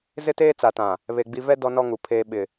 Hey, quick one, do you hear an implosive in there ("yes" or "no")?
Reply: yes